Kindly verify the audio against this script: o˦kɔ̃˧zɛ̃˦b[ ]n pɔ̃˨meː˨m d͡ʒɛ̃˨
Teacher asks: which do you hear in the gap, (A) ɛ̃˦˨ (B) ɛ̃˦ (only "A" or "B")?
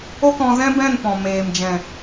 A